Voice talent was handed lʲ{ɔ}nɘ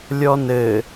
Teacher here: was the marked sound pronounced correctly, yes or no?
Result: yes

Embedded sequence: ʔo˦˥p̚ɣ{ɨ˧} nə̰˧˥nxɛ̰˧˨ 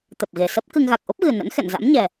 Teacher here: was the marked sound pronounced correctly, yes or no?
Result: no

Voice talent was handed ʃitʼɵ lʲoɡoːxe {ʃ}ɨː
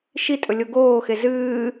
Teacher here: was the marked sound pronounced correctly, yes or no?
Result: no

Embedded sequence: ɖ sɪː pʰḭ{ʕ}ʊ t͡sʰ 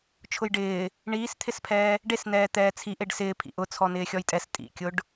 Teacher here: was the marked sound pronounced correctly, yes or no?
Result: no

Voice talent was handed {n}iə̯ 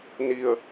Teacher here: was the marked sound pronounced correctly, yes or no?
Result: yes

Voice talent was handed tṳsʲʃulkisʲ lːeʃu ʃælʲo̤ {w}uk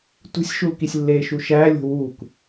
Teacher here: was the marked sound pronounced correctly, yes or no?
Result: yes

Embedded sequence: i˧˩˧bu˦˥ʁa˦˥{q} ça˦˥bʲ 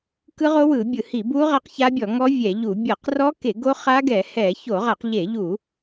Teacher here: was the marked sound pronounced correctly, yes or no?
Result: yes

